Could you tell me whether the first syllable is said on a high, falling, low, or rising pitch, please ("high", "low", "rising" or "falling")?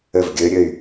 falling